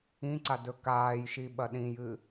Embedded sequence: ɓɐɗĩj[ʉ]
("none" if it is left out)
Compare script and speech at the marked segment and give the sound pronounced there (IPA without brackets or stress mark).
ɨ